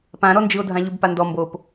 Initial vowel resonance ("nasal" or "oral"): nasal